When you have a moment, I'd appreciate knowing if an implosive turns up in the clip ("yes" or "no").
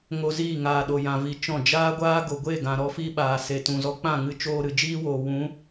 yes